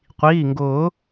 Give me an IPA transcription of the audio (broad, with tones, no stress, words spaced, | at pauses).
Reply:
qʷiː˩˧˩ŋɡʊː˨˩˦